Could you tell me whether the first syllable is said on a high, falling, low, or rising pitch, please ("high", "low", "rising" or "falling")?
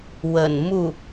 low